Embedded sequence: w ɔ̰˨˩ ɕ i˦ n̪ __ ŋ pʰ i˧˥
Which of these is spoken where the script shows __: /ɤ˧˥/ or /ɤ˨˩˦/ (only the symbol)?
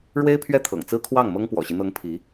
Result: ɤ˧˥